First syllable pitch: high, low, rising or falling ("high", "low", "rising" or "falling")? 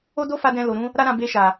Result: high